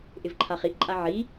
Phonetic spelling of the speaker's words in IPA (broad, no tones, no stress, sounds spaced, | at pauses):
ʔ ɪ v ǃʰ a χ i ʔ ǃʼ a ʕ i